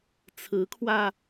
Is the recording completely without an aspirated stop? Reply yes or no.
no